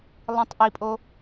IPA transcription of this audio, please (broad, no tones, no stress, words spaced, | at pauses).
lˠĩtˤʔipʼo